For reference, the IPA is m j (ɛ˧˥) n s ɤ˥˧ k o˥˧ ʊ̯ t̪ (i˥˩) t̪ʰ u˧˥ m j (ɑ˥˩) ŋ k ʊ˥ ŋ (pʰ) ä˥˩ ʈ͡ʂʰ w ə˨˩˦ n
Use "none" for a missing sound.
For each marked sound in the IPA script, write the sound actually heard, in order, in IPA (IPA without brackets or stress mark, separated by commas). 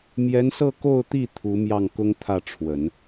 ɛ˧˥, i˥˩, ɑ˥˩, t̪ʰ